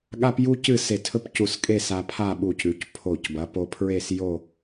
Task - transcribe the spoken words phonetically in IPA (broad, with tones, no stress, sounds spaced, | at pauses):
ɠ a˥ p j u˥ c ɨ˥˧ s e˧˩ tʰ ɵ˥ p c u˧˩ s kʼ e˥˧ s a˧ pʰ a˥˧ ɓ u˧˩ c ʉ˩˧ c pʰ o˧˩ c b ɐ˩˧ p o˧ pʰ ɹ e˥˧ s j o˥˧